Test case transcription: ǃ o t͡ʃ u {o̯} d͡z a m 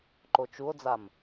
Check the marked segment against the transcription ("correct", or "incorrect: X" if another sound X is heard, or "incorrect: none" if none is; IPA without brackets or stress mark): correct